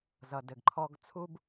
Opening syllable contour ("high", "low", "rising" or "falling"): low